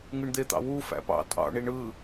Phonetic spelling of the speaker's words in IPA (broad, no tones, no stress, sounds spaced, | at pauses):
ŋ ɯ ɳ d̪ e t̪ ɑ̰ w u f æ̰ p ɑ̰ tʼ ɑ̰ ɳ i ɳ ɯ